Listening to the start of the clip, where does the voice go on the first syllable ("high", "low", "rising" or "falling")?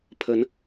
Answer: rising